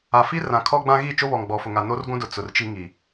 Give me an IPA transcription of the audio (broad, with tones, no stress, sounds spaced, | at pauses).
a˨ f i˦ r ã˨ kʰ ɔ˦ ɡ͡b ã˦ ɣ i˦˨ t͡ʃ o˦ β ɔ˨ ŋ ɡ͡b ɔ˨ f ʊ˨ ŋ a˨ n o˦ r ɡʷ ũ˦ d ʊ˨ t͡s ʊ˨ r t͡ʃ i˦ ŋ i˨